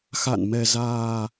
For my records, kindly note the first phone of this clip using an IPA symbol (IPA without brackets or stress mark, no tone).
x